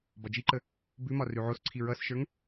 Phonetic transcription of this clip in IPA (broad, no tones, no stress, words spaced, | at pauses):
bɒd͡ʒiǃə | bʉmɒ rʉʕosǀʰi ɹʌsʃə˞ŋ